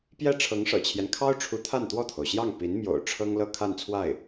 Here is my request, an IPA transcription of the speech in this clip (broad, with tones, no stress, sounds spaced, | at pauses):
p j ɛ˥˩ ʈ͡ʂʰ ɤ˧˥ ŋ ʂ ɤ̰˨˩ t͡ɕʰ j ɛ˦ n kʰ ɑ˥ ʊ̯ ʈ͡ʂʰ u˧˥ t̪ʰ a˥˧ n t̪ w ɔ˥˩ t̪ʰ o˩ ʊ̯ ɕ j ɑ˥˩ ŋ p i˧˥ n m j o̰˨˩ ʊ̯ ʈ͡ʂʰ ɤ˥ ŋ l ɤ˥˧ kʰ a˥˧ n t͡sʰ w a˥˩ ɪ̯